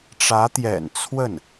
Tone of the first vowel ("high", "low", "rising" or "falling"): rising